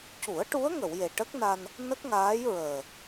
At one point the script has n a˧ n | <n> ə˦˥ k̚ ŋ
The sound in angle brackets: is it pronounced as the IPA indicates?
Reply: yes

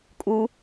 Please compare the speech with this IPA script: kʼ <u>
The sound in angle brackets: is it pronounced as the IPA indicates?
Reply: yes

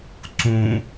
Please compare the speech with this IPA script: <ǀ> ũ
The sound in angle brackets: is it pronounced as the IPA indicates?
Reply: yes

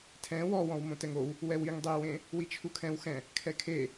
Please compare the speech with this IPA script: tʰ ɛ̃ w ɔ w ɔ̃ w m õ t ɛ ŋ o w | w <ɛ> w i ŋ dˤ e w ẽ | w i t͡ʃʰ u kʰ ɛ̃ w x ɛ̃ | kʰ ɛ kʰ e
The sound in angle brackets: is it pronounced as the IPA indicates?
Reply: yes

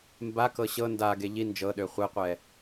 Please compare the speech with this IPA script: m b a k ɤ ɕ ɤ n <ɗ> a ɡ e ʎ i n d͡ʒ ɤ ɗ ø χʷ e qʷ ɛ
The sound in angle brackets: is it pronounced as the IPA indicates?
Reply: no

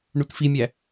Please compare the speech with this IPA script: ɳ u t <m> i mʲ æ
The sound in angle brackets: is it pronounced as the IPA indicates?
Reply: no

